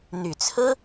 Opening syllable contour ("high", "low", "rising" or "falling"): low